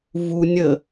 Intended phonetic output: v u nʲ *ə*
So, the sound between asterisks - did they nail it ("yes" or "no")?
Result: yes